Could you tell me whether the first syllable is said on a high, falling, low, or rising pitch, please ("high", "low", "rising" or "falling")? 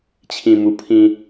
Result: low